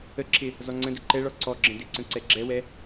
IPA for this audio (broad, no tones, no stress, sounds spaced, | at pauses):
ə ǁʰ ɪ | z ɔ ŋ͡ǀ ə̃ d ɪ ǃ ɛ ɭ ɔ ǀ ɔ ɡ͡ǁ ə̃ d ɪ ǀ ə̃ ǀ ɛ ɡ͡ǁ ɛ w ɛ